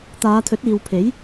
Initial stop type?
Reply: plain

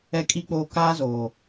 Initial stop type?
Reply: ejective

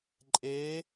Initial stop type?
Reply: click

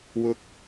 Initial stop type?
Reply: plain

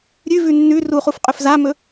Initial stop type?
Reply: ejective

